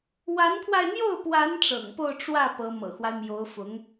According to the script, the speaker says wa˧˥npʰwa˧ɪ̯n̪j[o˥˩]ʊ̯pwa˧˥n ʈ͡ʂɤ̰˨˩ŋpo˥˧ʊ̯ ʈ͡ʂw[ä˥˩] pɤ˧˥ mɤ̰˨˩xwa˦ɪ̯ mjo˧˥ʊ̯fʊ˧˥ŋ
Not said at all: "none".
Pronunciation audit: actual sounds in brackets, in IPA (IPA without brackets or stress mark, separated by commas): o˥˩, ä˥˩